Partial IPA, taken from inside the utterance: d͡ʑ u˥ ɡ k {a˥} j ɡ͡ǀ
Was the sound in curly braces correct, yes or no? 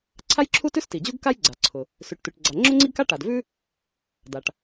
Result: yes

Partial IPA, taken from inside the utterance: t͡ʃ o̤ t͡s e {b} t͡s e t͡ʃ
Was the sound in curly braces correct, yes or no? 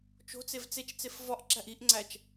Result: no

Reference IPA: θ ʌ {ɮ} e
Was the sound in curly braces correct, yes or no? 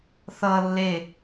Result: no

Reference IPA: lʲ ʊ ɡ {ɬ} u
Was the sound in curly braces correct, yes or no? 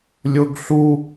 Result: yes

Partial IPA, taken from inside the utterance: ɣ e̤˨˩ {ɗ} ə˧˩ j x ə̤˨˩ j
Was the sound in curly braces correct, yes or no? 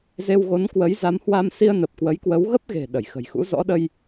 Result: yes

